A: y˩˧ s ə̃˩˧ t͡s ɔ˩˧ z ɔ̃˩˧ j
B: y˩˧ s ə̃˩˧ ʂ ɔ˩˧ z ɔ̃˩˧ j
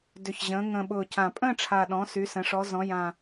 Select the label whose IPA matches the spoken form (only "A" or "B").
B